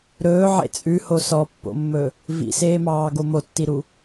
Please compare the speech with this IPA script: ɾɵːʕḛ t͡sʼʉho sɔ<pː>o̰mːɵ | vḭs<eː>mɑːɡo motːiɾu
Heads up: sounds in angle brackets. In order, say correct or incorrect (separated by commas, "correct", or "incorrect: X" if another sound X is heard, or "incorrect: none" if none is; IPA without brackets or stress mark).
correct, correct